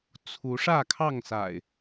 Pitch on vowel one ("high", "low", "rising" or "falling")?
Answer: rising